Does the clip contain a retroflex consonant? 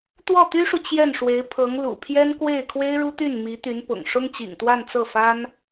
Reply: yes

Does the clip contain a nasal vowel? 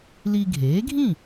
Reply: yes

